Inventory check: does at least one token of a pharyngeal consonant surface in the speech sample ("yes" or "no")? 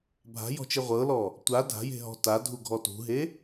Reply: no